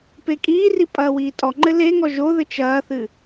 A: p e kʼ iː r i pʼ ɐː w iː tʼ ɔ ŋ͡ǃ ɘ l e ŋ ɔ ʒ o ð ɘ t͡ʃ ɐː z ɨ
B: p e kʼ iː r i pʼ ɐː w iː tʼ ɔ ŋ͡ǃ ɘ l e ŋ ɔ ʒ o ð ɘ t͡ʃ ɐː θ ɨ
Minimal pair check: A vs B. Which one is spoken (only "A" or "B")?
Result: B